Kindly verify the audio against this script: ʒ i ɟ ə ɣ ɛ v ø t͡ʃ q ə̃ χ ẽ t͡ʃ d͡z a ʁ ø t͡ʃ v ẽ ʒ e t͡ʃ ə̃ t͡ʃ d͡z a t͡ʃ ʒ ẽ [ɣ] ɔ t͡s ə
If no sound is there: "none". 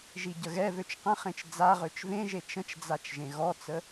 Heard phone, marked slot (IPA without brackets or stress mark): ɣ